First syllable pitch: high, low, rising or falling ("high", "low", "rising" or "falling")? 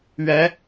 rising